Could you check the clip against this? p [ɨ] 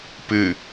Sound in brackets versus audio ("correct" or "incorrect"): correct